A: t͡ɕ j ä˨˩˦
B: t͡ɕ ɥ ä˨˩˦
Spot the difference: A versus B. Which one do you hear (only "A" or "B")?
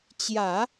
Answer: A